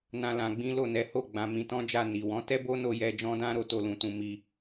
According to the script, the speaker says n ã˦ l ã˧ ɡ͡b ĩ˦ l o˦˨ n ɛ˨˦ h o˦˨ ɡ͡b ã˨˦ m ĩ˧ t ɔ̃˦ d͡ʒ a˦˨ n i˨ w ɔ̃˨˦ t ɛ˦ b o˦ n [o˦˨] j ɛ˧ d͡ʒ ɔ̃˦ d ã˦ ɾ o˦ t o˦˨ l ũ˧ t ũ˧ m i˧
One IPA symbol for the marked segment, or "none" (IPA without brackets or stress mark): o˧